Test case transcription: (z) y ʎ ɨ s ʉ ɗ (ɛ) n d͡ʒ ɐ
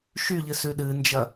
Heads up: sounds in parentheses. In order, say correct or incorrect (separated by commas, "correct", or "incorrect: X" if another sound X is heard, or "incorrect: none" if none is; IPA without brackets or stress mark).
incorrect: ʃ, incorrect: ɨ